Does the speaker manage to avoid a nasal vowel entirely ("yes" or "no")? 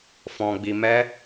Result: no